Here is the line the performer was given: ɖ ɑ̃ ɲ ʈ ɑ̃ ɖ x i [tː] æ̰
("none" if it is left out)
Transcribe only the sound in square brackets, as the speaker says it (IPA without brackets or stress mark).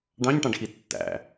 tː